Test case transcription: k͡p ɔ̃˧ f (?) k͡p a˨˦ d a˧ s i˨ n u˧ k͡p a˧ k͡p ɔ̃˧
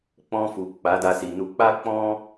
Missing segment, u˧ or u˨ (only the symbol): u˨